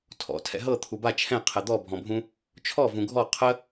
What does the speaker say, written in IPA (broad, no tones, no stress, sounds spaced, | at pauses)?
tʰ ɔ̰ tʰ ɛ̰ ɦ ɤ t̪ʰ u b a t͡ʃʰ ɛ̃ qʰ ɛ d̪ ɔ bʱ ɔ̃ bʱ ũ | t͡ʃʰ ɔ v ũ ɡʱ ɔ qʰ ə